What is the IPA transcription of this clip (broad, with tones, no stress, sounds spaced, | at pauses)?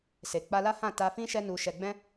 s e˨ k͡p a˧ l a˦ h ã˦˨ t a˧ f ĩ˦ ʃ ɛ˦ n u˧ ʃ ɛ˧ ɡ͡b ɛ̃˦